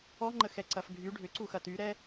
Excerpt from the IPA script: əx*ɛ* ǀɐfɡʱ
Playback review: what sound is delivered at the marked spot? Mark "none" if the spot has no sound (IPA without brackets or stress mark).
ɛ